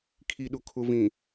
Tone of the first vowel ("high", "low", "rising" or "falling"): low